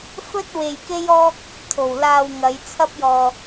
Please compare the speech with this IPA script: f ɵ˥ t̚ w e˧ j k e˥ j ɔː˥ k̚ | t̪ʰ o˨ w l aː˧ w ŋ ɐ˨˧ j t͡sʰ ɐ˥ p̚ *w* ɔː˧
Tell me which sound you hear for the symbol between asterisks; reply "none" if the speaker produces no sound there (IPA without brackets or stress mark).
j